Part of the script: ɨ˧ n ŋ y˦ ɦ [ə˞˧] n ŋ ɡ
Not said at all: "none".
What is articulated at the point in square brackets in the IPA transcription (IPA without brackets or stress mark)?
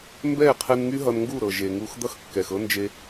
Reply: ʌ˧